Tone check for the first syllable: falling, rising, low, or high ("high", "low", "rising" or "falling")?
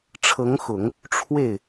rising